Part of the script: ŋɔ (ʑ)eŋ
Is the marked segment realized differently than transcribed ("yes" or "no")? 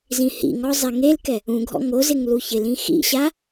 yes